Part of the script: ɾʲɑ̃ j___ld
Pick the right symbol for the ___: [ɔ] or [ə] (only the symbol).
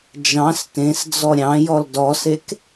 ɔ